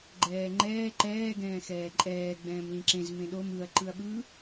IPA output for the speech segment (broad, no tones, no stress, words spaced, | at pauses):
ɡ͡ǃɛːŋ͡ǃɛː ǃɛː ɡɛ̃ːxɛːǃʼɛː ɡ͡bɛ̃ːmlĩǁẽz mẽɗom ɯɐ̯ ǃɯɐ̯ɓɯ